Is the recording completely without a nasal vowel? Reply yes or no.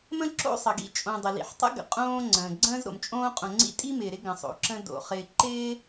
no